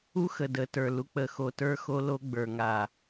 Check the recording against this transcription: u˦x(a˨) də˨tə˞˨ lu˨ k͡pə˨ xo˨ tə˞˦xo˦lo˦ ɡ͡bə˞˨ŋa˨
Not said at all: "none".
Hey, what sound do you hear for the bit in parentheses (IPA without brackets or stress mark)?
ə˨